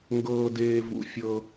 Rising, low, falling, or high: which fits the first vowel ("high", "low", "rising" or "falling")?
high